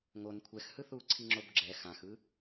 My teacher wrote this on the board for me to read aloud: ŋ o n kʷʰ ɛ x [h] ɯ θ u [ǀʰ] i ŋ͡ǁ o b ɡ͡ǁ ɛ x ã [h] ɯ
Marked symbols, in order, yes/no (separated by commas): yes, yes, no